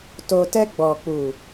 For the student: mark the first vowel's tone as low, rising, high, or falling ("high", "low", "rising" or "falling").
low